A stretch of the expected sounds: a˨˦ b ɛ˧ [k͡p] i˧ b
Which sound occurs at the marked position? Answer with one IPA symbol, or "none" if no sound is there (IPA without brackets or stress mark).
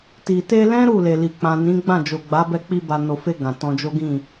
k͡p